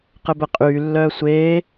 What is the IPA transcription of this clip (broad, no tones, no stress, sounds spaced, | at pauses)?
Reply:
q ɘ b ɛ qʼ yː lː œː sʷ eː